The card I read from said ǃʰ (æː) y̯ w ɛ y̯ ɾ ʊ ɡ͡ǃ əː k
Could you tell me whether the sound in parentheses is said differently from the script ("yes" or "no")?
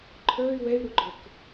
yes